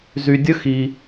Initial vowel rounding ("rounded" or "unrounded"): rounded